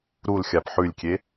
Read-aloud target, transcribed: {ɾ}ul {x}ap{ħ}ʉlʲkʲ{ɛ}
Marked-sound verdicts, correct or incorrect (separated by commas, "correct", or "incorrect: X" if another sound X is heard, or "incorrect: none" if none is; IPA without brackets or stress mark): correct, incorrect: xʲ, correct, incorrect: e